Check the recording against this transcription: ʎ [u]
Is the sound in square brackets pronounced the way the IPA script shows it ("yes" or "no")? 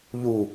yes